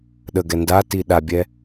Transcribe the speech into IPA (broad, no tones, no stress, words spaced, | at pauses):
ɗəɡɛ ndati ɗabʲɛ